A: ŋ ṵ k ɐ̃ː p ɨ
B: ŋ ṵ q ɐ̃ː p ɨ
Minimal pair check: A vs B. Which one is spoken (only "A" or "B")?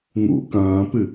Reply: A